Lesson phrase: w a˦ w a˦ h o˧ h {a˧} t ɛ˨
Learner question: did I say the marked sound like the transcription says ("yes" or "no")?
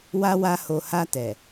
yes